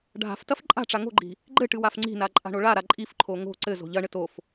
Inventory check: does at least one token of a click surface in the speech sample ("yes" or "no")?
yes